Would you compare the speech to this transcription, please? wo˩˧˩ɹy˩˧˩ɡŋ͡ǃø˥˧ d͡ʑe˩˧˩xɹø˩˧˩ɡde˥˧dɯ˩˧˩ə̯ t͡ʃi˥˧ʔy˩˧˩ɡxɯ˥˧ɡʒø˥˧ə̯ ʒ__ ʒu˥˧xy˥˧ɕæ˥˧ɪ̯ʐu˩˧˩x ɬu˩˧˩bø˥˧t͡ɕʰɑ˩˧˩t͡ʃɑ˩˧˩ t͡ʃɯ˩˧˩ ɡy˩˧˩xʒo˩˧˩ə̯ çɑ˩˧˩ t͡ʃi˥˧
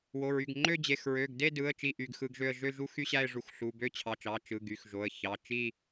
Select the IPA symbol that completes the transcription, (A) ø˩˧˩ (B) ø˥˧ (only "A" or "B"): B